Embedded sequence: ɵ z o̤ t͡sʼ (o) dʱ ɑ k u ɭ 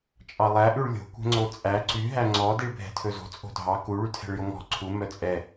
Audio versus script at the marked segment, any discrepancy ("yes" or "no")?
yes